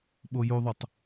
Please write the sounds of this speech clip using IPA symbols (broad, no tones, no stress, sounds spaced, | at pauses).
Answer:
ɓ o j u ðˤ u tˤ